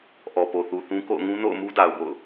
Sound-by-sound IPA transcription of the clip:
ʔ ɔ˨ p o˨ θ u˨ θ ũ˦ k o̰˦˨ ʊ̯ ŋ ũ˦ n o̰˦˨ ʊ̯ m u˦ d a˨ ʊ̯ b o̰˦˨ ʊ̯

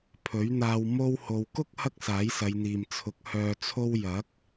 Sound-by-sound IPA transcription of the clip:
pʰ ɵ˨˥ ɥ n̪ aː˧ w m o˧ w h o˨ w k ʊ˥ k̚ h ɐ˥ k̚ s aː˨˥ j s ɐ˨˧ j n̪ iː˨ m t͡sʰ ʊ˨˥ k̚ h œː˧ t͡sʰ o˥ w j ɐ˨˥ k̚

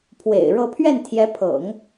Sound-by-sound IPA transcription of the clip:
pʰ w ḛ˨˩ ɪ̯ ɻ ɤ˥˧ pʰ ɥ ɛ˥˩ n t̪ʰ j ɛ˧˥ pʰ ɤ̰˨˩˦ ŋ

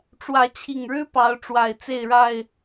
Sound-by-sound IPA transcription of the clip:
ʈ͡ʂ w ä˨˦ t͡ɕʰ i˨˩ ŋ ɻ ɻ̩˦ p ɑ˨˦ ʊ̯ ʈ͡ʂ w a˨˩ ɪ̯ t͡s e˥˨ ɪ̯ ɻ a˥˨ ɪ̯

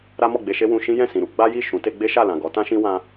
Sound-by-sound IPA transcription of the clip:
ɾ a˦ m ɔ˦˨ ɡ͡b e˧ ʃ e˦ w ũ˧ ʃ ĩ˦ j ɛ̃˦˨ s ĩ˨ ɾ u˨˦ ɡ͡b a˦ j i˦˨ ʃ ũ˨˦ t e˦ ɡ͡b e˦ ʃ a˦˨ l ã˨ ɡ ɔ˨˦ t ã˦ ʃ ĩ˦ w ã˦

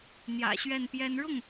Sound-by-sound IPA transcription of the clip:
n̪ j ä̰˨˩ ɕ ɥ ɛ˥˩ n p j ɛ˥ n ɻ ʊ˥˩ ŋ

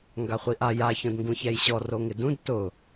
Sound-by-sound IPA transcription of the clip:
ŋ ɡ a χʷ i ʔ a j a ç õ d ŋ ɡ ũ ç ɛ j ɕ ɔ r o ŋ ɪ d ũ d t ʊ

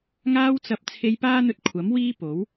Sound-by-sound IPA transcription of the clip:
ŋ aː˧ w t͡s ɐ˨ p̚ t͡sʰ e˧ j p aː˥ n̪ ɵ˧ t̚ kʷʰ ɐ˨˥ m w iː˥ p o˨˥ w

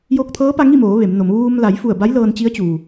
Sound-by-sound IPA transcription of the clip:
j o˧ k̚ t̪ʰ ɤː˧˥ p a˧ ŋ i˥˨ m oː˩˧ ʋ e˩˧ m n o˩˧ m ʋ uː˧ m l a˩˧ j f u˧˩ ə̯ b a˧˥ j l ɤː˧ n t͡ɕ i˧˥ ə̯ t͡ɕ uː˩

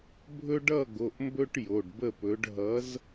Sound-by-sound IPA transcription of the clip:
bʱ ɵ˦ ɖ ʌ˥˩ ɡ o˩˧˩ ʔ m b ɵ˦ ʈ j o˩˧˩ ɖ b ə˥˩ p ɵ˨˥ ɖ ɦ ʌ˨˥ z

